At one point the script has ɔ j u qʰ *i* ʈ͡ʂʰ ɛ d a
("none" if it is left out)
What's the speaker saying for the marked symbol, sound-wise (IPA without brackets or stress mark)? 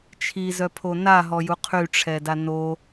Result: y